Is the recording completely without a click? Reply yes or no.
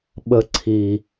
no